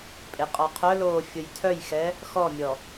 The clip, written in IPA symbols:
pʼeqʼɔqʰœloː fʲʊjtʰœjxɛ | xɔmʲɔ

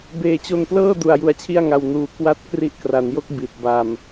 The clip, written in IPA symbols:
beː˨˩t͡ɕo˧nplɤː˥˩ du˧a̯ju˧a̯t͡ɕʰi˥˩a̯ŋa˧w nuː˨˩ kwa˦˥t̚ kri˦˥ʔkra˩˦njo˥˩k̚ bi˨˩t̚ba˧m

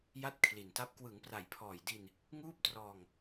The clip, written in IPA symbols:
ja˥˩t̚kʰli˨˩nta˦˥p̚ kwɯ˩˦ŋpra˨˩jpʰɔː˨˩jdi˧n | ŋuː˥˩p̚trɔː˧ŋ

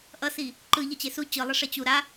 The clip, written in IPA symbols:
ʔʌsi | ǃɯ ʎʌt͡ɕesu t͡ɕɯlˠʌʂɛ t͡ɕu ɾa

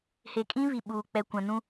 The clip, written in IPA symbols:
he˨kʼĩ˦ βi˨ɓuː˨ k͡pɛ˨ kʷã˨nũ˦

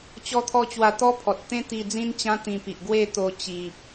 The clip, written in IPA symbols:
t͡ɕɔ˦t̪ʰɔ˦ t͡ɕwa˧t̪ɔ˦pʰɔ˨t̚t̪ẽ˦ t̪i˧d͡zĩ˦nt͡ɕã˦ t̪ĩ˧pi˨ʔ ɡwe˥˧t̪o˧ t͡ɕi˨p̚

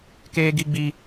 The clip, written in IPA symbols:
keː˦ɡi˦ɡ͡bi˦

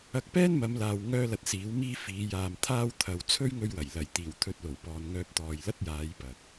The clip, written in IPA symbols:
ɐ˧k̚pɛː˥nmɐ˨˧mlaː˨w ŋœː˥lɐ˧t̚siː˨˥wmiː˥ fiː˨˧ jaː˨mt̪ʰaː˥w t̪ʰɐ˨wt͡sʰɵ˥ɥ ŋɵ˥ɥwɐ˨˩j lɐ˨˩jt̪iː˨˩w t̪ʰɵ˧t̚lo˨˩wpɔː˨nŋœː˧p̚ t̪ɔː˨jlɐ˥t̚jaː˨˧j pɐ˨k̚

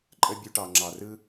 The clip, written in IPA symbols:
ǃʼə˦bʲu˧ʈɑ˨ ŋ͡ǁɑ˨rɯ˦

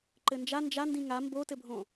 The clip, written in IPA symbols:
ǃɘnd͡ʒa nd͡ʒandĩ ŋa mbotɘbʱõ

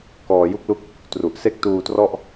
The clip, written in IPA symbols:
kɔː˨˩ju˥˩k̚lu˥˩k̚ | tru˨˩ʔ se˦˥k̚tuː˧trɔ˥˩ʔ

